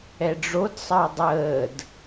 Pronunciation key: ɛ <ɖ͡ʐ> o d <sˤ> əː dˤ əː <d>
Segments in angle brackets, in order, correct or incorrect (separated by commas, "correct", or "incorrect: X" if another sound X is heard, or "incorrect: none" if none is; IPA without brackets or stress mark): correct, correct, correct